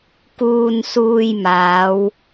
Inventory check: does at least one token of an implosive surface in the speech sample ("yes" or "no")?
no